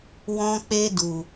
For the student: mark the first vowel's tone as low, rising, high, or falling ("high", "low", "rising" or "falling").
high